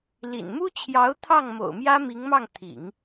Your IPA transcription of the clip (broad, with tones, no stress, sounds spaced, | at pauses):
l ḭ˨˩ n m u˥ t͡ɕʰ j ɑ˧˥ ʊ̯ t̪ʰ ɑ˥˩ ŋ m o̰˨˩ ʊ̯ m j ä˥ m i˧˥ ŋ m ɑ˥˩ ŋ t̪ʰ ḭ˨˩˦ ŋ